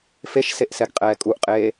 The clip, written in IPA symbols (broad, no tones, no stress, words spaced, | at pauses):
feʃseʔsɛɡqʼɛː kʼuʔqʼeː